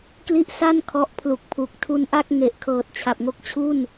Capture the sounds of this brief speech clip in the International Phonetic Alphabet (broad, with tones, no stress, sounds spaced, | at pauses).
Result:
k l i˥˩ ʔ s a˥˩ n kʰ ɔ˦˥ ʔ pʰ l u˨˩ k̚ pʰ u˨˩ k̚ tʰ u˧ n ʔ a˥˩ k̚ ŋ e˨˩ ʔ kʰ ɤː˨˩ t̚ t͡ɕʰ a˨˩ p̚ ŋ o˥˩ k̚ t͡ɕʰ u˥˩ n